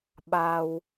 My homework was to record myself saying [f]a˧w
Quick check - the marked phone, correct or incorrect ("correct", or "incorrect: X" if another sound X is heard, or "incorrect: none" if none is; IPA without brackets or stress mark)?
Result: incorrect: ɓ